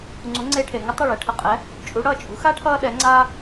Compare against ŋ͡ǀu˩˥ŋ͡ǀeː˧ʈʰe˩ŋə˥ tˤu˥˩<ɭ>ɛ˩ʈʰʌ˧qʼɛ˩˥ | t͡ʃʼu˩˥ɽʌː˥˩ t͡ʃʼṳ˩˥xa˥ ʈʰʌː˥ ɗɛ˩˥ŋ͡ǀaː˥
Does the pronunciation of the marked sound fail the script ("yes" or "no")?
no